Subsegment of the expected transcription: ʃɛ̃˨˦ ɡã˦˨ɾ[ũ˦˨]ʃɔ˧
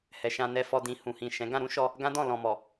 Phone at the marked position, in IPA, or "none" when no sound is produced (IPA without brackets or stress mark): ũ˨˦